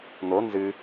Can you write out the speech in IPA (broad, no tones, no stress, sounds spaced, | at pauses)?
n̪ o n z ɨ